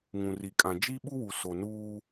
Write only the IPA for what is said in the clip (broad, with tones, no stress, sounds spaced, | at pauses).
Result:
ŋ ũ˨ r i˨ kʼ ã˨ d͡ʒ i˦ ɓ u˦ w u˨ s o˨ n uː˦